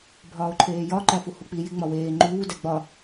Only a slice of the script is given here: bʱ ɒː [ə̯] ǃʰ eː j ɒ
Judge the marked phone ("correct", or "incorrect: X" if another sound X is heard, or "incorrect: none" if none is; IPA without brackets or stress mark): incorrect: ʊ̯